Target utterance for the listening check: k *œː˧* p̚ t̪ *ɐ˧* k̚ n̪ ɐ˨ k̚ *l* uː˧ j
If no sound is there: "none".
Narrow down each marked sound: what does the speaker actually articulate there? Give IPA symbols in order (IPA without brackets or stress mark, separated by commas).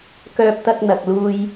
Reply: œː˧, ɐ˧, l